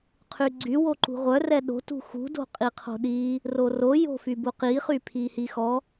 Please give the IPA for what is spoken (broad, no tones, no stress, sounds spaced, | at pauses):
qʰ y ɡ͡ǀ y w o ǃ ṳ ʁʷ œ r ɛ ɗ o̤ t ṳ x ṳ d o̤ qʼ i qʰ o̤ ɗ i | r o r o j o̤ f y b u q i χ y pʰ i h i x ɔ